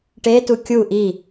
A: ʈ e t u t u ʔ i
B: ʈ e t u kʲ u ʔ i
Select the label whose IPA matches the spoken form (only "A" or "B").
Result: B